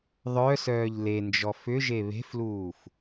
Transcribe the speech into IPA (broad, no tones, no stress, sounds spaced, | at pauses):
ðˤ œ s œː ʎ l e n d͡ʒ ɔ f ʏ ʒ e β e̤ f l uː f